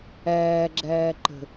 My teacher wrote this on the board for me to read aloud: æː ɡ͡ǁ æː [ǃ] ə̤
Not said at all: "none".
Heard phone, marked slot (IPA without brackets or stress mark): ǃ